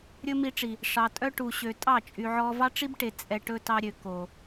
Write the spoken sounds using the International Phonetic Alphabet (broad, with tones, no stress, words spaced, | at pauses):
ɾʲɵ˦mi˧ʈ͡ʂi˨ | ʂɑ˨tʼœ˦ʈu˨ɕø˨ tʼɑ˦˨t͡ʃʼy˨ʕɔ˧ vɑ˦ʈ͡ʂi˦bʈe˨ t͡sʼɛ˧ʈɵ˦tɑ˦ ɾʲø˨ko˨